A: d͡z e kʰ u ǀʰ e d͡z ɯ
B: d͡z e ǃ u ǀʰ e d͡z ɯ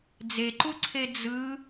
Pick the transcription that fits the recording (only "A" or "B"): B